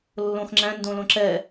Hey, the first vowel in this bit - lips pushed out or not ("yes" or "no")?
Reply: yes